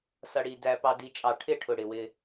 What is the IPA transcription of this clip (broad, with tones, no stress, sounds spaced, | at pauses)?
s ʌ˨ ɽ i˨ d æ˨ p ɑ˨ d i˨ t͡ʃʼ ɑ˨ ʈʰ ɪ˦˨ ʈʰ ʊ˨ ɽ ɪ˨ w ɪ˦